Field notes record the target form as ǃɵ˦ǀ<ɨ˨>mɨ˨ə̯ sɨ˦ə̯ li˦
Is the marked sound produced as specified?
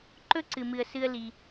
yes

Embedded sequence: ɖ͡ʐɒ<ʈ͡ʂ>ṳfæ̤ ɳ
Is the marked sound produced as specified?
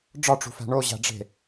yes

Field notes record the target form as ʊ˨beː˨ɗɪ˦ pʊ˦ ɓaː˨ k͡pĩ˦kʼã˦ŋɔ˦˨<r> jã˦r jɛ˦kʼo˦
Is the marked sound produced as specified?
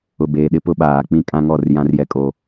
yes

